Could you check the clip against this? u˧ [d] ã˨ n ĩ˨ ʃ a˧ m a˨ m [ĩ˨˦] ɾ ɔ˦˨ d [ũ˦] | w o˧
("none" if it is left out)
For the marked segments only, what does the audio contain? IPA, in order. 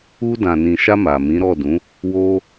d, ĩ˨˦, ũ˨˦

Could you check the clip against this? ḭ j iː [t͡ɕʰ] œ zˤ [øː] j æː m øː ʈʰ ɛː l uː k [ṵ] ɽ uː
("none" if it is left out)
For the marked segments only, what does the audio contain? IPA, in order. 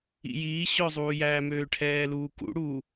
ɕ, uː, ṵ

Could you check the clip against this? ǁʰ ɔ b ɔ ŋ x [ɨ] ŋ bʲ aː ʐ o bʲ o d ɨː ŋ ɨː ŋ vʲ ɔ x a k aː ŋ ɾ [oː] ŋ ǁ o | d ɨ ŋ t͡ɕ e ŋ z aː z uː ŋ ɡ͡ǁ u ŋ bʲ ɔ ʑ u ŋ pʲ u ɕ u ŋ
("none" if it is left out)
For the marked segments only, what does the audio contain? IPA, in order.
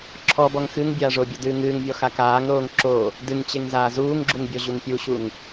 ɨ, oː

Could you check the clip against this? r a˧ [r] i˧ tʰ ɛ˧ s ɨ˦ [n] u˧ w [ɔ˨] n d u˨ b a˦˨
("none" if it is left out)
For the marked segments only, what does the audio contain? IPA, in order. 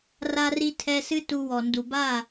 r, t, ɔ˨

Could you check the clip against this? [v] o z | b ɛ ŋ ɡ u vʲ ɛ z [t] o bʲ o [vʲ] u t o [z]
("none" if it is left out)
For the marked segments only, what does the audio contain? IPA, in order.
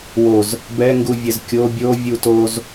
w, kʲ, vʲ, z

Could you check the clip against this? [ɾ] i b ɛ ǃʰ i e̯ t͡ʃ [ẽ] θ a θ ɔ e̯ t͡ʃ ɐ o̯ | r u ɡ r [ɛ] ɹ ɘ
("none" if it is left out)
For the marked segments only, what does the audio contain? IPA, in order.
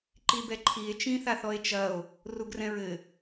ǃ, ĩ, ɛ̃

